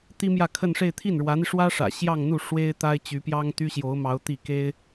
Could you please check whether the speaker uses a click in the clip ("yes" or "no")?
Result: no